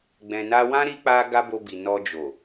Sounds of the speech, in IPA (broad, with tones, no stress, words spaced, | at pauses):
ɡ͡bɛ̃˨na˧wã˦ ɾi˦k͡pa˦ ɡa˦bo˧bi˨ nɔ˧d͡ʒo˨